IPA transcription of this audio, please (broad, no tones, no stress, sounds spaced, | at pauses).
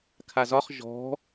kʰ a z ɒ χ ʒ ɔ̤